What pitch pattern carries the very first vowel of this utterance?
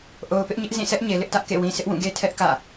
low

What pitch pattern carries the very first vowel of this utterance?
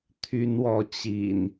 high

